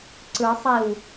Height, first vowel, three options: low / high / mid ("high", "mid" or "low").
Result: high